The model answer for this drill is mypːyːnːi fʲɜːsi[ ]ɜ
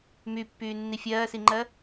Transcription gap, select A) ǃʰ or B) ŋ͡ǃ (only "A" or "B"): B